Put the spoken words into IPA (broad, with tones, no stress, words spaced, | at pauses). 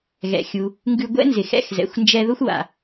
ɣɛ̰˩xʲu˩ | ŋɡʉ˧ɡʷɛ̰˥nzɪ˩x ɛ̰˧xzɛ̰˩xʷnd͡ʒɛ˧ ðʊ˥xʷwa̰˩